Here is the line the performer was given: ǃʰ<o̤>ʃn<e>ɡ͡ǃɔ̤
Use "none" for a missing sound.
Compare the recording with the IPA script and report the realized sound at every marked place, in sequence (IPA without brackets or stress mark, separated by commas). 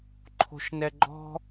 o̤, ɛ